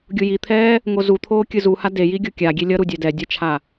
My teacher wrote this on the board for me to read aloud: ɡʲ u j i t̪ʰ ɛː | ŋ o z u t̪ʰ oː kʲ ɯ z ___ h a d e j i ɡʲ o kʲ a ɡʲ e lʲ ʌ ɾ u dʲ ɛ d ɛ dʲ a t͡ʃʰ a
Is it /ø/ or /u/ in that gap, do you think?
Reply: u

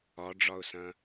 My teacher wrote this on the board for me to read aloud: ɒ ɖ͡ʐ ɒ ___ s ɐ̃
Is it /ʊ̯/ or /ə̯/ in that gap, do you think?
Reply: ʊ̯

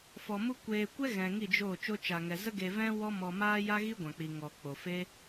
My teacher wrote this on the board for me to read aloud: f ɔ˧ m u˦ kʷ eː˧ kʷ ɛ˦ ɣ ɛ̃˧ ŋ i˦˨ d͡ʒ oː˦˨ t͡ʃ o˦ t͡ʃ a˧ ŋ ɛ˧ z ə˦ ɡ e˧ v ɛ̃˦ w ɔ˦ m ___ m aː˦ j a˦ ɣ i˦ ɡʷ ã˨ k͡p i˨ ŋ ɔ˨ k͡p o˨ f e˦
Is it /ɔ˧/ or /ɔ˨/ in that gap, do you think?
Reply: ɔ˧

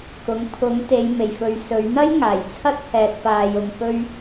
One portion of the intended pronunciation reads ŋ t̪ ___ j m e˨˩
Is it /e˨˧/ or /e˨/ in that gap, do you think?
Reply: e˨˧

